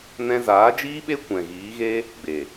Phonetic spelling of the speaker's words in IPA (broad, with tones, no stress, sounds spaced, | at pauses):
n ɛ̃˧ z aː˨˦ d͡ʒ iː˦ ɓ e˦ kʷ ɛ̃˨ ɣ iː˨˦ ɣ e˦ | ɡ͡b e˨